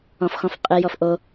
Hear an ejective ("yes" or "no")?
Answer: yes